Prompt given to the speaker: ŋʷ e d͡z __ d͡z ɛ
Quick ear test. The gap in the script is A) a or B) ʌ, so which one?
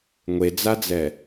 A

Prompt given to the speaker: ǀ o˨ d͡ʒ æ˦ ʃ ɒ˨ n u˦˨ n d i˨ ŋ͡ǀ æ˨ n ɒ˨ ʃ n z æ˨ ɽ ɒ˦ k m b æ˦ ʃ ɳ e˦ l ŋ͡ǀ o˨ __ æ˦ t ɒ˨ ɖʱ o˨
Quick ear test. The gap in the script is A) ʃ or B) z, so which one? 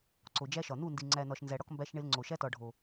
A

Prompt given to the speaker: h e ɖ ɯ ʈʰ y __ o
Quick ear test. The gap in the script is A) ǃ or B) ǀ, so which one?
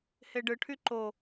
A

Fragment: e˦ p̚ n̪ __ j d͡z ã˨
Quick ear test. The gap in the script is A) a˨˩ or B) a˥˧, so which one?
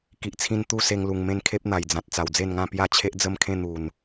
A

